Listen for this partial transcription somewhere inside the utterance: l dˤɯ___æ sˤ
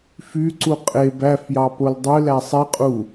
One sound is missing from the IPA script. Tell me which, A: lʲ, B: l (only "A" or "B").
B